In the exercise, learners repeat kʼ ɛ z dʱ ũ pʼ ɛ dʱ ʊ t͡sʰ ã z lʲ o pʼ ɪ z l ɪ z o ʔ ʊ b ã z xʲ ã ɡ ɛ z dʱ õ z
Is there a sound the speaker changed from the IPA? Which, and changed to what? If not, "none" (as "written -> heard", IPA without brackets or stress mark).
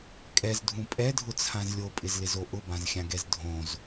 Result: none